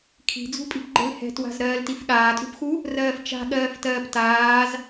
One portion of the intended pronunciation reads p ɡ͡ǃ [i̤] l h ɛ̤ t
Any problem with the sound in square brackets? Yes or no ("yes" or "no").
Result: yes